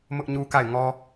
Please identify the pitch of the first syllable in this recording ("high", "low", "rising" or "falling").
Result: high